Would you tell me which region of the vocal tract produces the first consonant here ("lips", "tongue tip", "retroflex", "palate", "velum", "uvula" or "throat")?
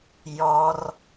palate